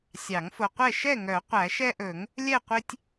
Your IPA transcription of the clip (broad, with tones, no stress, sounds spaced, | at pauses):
sʲ ɑ˨˩˦ ŋ f o˨ qʷ ɛ˥˨ ʃ ɛ˥˨ ŋ œ˨˩˦ qʷ æ˨˩˦ ʃ ɛ˦ ʔ ɵ˨˩˦ ŋ | lʲ ɛ˥˨ qʷ i˦ tʲ